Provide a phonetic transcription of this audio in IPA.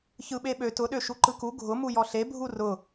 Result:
ç ɯ ɓ e ɓ ø t ʊ ɗ ø ʃ u ǃ ɯ k u ɡʱ ʊ m u j ɔ ɬ e bʱ u r ʊ

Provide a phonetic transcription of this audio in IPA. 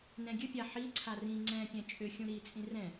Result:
n ɛ̃ ɡʲ ɨ pʲ a ħ i ǀʰ a r ĩ ŋ͡ǀ ɛ̃ pʲ ɛ̃ t͡ʃʼ ʏ xʲ ũ ɾ i t͡sʼ ĩ r ɛ̃

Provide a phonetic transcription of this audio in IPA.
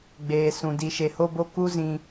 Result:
ɡ͡b eː˨ s ũ˨ d i˨ ʃ e˨ h o˦ b o˦ k u˦ z ĩ˨

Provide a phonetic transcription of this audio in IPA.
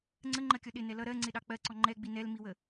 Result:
ŋ͡ǀ ə ŋ͡ǃ ɜ kʲ ɔ ɗ ɪ n ɛ l ʌ ɾ ɜ ŋ͡ǀ ɪ ɗ ɑ k͡p ɜ ǀ ɔ ŋ͡ǃ ɛ ɡ͡b i n ɛ l m i w ə

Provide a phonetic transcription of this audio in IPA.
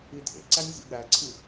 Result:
i dʱ ḛ ǀ æ nʲ zʲ ṵ ɠ æ ǀʰ i

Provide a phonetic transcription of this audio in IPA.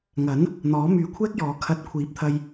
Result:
ŋ ɐ˨˥ n | n̪ ɔː˨˥ m yː˨ kʷʰ ɛː˥ k̚ j ɔː˨˧ kʰ ɐ˨ t̚ kʷʰ iː˨˥ p̚ t̪ʰ ɐ˧ j

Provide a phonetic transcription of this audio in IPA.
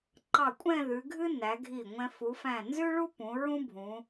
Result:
ǃ ɑ˧˩ kʷʼ ɛ̃˥˧ ð ʉ˩˧ ɡʱ ɨ˥ n æ˩˧ ɡʱ i˧˩ ŋʷ ɛ̃˧ f u˩˧ f æ̃˧˩ n z ʉ˥ ɭ u˥ p ũ˩˧ ɹ ũ˥ bʱ ũ˩˧

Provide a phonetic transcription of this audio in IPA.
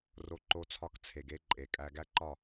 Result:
r o˦ ǃ o˦ t͡sʰ ɒ˦ k t͡sʰ e˨ ɡ e˦ ǃʼ e˨ kʼ æ˦ ɡ æ˦ ǃ ɒ˦˨

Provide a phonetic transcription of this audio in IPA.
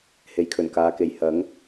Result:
h e˨˥ j kʰ ɵ˨˩ n k aː˨˧ k e˨ j h ɐ˨˥ ŋ

